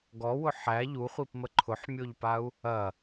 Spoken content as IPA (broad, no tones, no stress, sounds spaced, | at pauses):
ɡ ɔ w ʊ ħ æ ʎ u χʷ i p m ə ǃʰ ʊ ħ mʲ o ʎ p a u̯ | ɐ